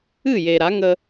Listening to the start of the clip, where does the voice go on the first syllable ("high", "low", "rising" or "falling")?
falling